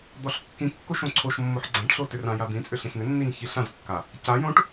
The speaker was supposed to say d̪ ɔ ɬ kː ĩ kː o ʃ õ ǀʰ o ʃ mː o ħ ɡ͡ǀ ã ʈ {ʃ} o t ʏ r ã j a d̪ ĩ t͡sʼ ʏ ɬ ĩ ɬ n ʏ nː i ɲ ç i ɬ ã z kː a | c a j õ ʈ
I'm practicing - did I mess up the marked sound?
yes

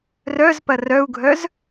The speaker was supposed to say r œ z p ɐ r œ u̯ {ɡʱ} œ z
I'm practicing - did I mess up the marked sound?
no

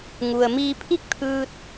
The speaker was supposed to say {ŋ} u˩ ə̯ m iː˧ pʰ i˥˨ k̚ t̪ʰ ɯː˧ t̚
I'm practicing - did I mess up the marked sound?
no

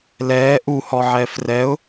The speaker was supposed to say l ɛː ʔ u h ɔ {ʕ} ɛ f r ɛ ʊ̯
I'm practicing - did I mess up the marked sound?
no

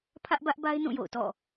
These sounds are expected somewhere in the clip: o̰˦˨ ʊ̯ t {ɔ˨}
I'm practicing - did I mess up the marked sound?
yes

